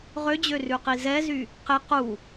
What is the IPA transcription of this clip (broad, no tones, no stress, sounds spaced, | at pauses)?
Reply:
ʁ ø d͡ʑ ø r ʉ q i z ɛ z y | q e q u